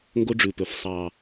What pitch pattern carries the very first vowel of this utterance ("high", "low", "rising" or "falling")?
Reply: high